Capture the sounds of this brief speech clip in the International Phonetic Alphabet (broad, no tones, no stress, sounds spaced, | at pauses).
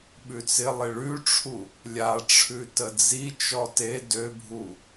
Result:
ɓ ʉ t͡s ɪ lˠ ɪ ɭ ʉ ʈ͡ʂʰ u | lʲ a ʈ͡ʂʰ ʉ t ə d͡z i t͡ʃ ɔ t e d ø bʱ u